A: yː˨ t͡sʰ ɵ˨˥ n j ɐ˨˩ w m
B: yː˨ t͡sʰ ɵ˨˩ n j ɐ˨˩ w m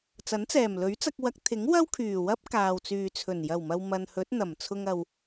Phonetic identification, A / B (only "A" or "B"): B